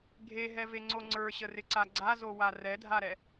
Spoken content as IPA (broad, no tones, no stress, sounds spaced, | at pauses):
ɡʱ e ɦ ɛ v e ŋ͡ǀ o ŋ͡ǀ ə˞ ɕ ə r ɪ ǀ a ɡ͡ǀ a z o w a r ɛ dʱ a ɾ ɛ